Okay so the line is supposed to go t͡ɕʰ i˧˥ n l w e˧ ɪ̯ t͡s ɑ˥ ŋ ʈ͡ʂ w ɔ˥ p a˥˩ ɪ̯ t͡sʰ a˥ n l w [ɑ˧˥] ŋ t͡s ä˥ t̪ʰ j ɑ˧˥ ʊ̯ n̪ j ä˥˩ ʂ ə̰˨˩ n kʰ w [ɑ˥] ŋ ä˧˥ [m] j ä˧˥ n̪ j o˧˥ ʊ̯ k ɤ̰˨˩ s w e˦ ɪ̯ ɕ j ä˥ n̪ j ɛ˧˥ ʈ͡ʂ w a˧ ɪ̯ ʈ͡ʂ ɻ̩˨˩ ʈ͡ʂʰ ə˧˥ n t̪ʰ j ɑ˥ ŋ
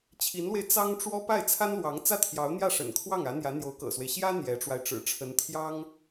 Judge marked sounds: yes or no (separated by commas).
yes, no, no